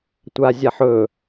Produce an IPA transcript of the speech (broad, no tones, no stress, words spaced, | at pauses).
tʷazʲaħɵ